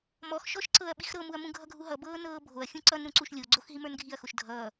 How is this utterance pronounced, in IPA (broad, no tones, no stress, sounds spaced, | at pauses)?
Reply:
m ɔ x ʃ ɔ ʃ ǀ ɤ ɐ̯ ɓ i x ɾ ɤ m u ɐ̯ m ũ ɡʱ ʌ ɡʱ u ɦ ʌ b ɤː n ɤː bʱ o ɐ̯ xʲ ũ ǀ ʌ n ɾ ũ ǀ u ʃ lʲ o ɡ͡ǀ o x ɦ i m ə˞ n ɡʱ i ɐ̯ x o ʃ dʱ ʌː